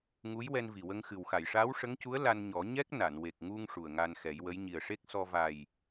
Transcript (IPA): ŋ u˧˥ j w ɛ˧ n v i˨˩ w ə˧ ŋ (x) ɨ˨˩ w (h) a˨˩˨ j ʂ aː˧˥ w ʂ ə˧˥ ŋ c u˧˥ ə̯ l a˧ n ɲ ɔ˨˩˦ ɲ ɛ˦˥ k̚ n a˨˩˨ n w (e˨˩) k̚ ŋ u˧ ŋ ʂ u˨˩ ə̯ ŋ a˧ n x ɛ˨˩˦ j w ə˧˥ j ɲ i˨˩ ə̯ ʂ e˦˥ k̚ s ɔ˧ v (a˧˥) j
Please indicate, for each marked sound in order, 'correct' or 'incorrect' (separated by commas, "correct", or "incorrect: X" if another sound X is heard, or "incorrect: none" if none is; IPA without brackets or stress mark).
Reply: correct, incorrect: x, correct, incorrect: a˨˩